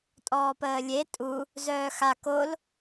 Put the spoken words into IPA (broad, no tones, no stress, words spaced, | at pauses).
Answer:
tʼɔːpəːlʲe tʼu | zœːxa kol